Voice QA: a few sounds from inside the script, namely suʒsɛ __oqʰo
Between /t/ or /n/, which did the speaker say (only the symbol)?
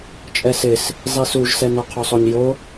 n